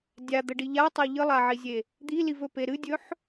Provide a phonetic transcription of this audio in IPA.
dʲ a d̪ ə ɖ i ʎ a tˤ a ʎ ɨ lˠ a ʕ i zʲ e | d̪ i l i v ɵ p e ɾ ɨ dʲ ɵ ħ

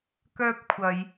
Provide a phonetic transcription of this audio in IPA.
k œː˥ p̚ kʷʰ ɐ˨˧ j

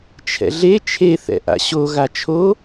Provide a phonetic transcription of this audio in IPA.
t͡ʃʰ ɛ̰ ɮ e t͡ʃʰ e θ ɛ̰ ʔ a̰ ɕ o ɣ a t͡ʃʰ o

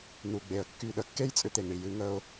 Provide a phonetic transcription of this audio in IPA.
n u˨ ɡ͡b e˨ ə̯ kː y˦˨ ɗ ə˧ kː e˦ j t͡sʼ ʏ˧ t̪ e˨ ŋ ɳ i˨ j ɨ˨˦ ŋ ə˦ ʊ̯

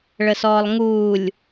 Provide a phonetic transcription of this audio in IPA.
ɭ ə s ɔː lˠ ŋ uː lʲ

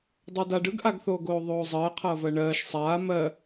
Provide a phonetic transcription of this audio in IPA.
dˤ ɜ d a ɖ ɯ ɡ ʔ a ɡ θ oː ɡ oː ðˤ oː zˤ ɜː qʰ ʌː v ɜ ɳ ɜː ʃ sˤ aː m ɜ

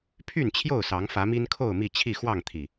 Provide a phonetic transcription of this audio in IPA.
pʰ y˥˨ n t͡ɕʰ j o˥˨ ʊ̯ s ɑ˨˦ ŋ f ä˨˦ m i˦ n kʰ o˥˨ ʊ̯ m i˥˨ t͡ɕʰ i˥˨ x w ɑ˥˨ ŋ t̪ʰ i˨˩

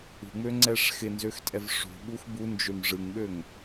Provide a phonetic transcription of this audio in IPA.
ṳ ŋ͡m ø ŋ͡ǀ ɛ ʂ x ɪ n z ø x tʼ ɛ v ʂ ṳ ɓ u x b u n d͡ʒ ø m ʐ ɯ ŋ ɓ ø ŋ

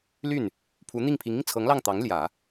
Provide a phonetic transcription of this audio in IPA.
l y˥˩ n | pʰ u˧˥ n̪ i˥˩ ŋ pʰ i˧˥ ŋ i˧ ŋ t͡sʰ ɤ˧˥ ŋ l ɑ˥˩ ŋ t̪ ɑ˧˥ ŋ l j ä˨˩˦

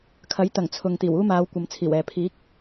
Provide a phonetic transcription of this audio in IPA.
kʰ ɐ˨˥ j t̪ ɐ˨˩ ŋ t͡sʰ ʊ˨ ŋ t̪ iː˨˩ w uː˥ m aː˨˧ w kʷ ɐ˨˧ m t͡sʰ iː˨˩ w ɛː˨ pʰ iː˨˥ k̚

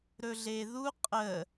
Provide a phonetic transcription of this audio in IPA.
ɾ ɵ ɮ e ð u qʼ ə

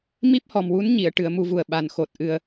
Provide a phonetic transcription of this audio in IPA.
m i˦˥ p̚ h ɔ˨˩ m w u˧˥ n ɲ i˨˩˨ ə̯ ʈ ɨ˨˩˦ ə̯ m u˧˥ v u˨˩ ə̯ ɓ a˨˩ n x o˨˩ t̚ ʔ ɨ˧ ə̯

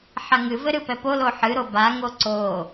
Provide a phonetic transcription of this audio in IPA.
ħ a ŋ ɨ v ɘ ɾ ɨ p ɛ p o l o ħ ɨ ɾ o b a ŋ o ǀ o

